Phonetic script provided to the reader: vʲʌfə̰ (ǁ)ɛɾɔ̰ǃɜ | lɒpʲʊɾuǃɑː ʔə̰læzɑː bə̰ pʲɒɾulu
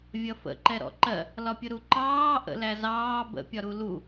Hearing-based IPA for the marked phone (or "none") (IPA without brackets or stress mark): ǃ